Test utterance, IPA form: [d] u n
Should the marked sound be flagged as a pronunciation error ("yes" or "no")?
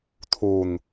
yes